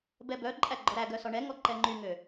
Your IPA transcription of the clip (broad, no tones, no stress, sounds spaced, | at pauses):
b ɛ b œ ǃʼ æ ɡ͡ǃ ɔ ɾ æ ɡ œ s ɔ ɳ ɛ ŋ ɔ ǃ ɛ ŋ͡ǃ y ŋ ø